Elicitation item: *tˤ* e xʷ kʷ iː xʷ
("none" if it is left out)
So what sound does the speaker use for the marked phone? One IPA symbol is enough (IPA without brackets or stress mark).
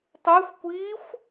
tˤ